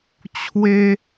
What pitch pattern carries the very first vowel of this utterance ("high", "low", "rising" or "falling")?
high